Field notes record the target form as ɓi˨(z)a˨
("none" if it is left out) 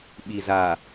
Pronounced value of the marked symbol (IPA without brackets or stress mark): z